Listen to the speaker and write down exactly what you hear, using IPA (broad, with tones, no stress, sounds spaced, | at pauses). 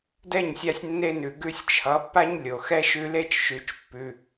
d ɛ˦˨ ɲ sʲ a˧ sʲ nː e˧ n ʉ˨ ɡ ʉ˦ sʲ t͡ʃʰ ʌ˨˦ pː a˦ ɲ lʲ o˨ x ɛ˦ ʃ ʉ˧ l e˦ t͡ʃ ʃ ʉ˨˦ t͡ʃ pː ʉ˧